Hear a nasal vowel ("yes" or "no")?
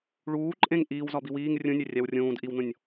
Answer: yes